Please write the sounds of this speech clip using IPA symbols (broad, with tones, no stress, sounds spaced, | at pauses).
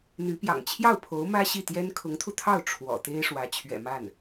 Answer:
n̪ y˧˥ p j ɑ̰˨˩ ŋ t͡ɕʰ j ɑ˥˩ ʊ̯ pʰ o˧˥ ʊ̯ m ä˥ ɕ i˥˩ t̪ j ɛ˥ n kʰ ʊ˧˥ ŋ t̪ʰ u˧ t̪ʰ ɑ˥˩ ʊ̯ ʈ͡ʂʰ w ɔ̰˨˩ t̪ e˥ ɪ̯ ʂ w ä˧˥ t͡ɕʰ ɥ ɛ̰˨˩ m a˥˩ n